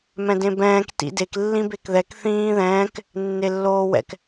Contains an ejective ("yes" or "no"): no